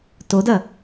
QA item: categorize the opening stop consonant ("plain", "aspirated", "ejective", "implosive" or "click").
plain